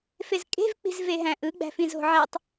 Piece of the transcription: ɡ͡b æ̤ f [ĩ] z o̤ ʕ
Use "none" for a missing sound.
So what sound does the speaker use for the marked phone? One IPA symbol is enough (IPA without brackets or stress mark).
ĩ